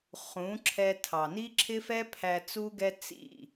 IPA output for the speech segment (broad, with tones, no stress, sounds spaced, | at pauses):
χ ũ˨˦ ǁʰ ɛ˧ tʰ ɑ˨ n i˦ ǁʰ ɪ˦ f ɛ˦ pʰ æ˧ t͡s u˦ ɡ ɛ˦ t͡s ḭ˦˨